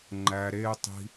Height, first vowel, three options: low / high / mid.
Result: low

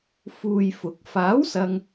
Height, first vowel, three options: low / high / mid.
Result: high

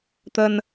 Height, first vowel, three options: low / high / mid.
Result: mid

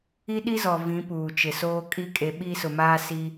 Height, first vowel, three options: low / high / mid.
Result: high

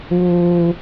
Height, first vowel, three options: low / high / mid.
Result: high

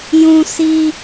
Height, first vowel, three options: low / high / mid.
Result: high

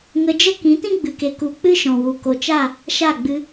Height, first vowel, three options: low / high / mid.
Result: mid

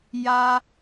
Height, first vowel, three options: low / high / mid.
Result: low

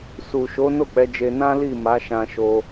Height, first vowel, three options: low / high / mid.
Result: high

